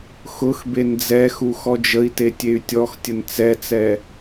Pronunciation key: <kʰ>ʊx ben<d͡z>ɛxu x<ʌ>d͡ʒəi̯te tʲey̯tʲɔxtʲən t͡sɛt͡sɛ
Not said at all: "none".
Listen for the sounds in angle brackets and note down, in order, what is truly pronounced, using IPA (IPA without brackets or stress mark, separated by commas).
x, d͡z, ɔ